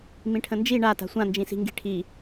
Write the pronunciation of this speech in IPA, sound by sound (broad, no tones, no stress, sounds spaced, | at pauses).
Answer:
m ĩ ʈʰ ə̃ n d͡ʒ i ɳ a t a̤ sʷ ã n d͡ʒ ĩ s i̤ ŋ ɡ i̤ ʈʰ i